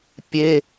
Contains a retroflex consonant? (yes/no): no